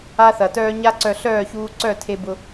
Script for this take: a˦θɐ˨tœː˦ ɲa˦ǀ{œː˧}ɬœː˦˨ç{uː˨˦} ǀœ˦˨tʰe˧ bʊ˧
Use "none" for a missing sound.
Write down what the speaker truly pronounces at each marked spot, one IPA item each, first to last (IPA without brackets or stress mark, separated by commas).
œ˧, uː˧